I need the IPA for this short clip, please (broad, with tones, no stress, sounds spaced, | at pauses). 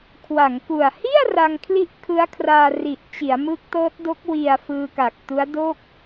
kʰ w a˩˦ ŋ k u˨˩ a̯ h i˥˩ a̯ r a˧ ŋ kʰ l i˥˩ ʔ kʰ ɯ˦˥ a̯ kʰ r aː˧ r i˨˩ ʔ t͡ɕ i˩˦ a̯ m ɯ˦˥ k̚ t ɤː˦˥ t̚ d o˦˥ k̚ w i˧ a̯ f ɯː˧ k a˨˩ k̚ t u˦˥ a̯ d o˥˩ k̚